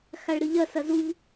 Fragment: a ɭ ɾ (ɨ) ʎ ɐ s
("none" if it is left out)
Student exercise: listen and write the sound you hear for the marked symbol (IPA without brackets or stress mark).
ɨ